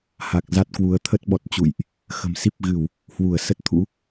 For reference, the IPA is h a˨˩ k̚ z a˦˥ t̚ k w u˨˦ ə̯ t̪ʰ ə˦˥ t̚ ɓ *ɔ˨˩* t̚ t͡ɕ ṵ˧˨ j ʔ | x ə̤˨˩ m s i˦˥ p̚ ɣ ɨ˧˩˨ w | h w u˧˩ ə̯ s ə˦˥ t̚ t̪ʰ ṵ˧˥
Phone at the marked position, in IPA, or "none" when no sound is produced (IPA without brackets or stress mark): ɔ˨˩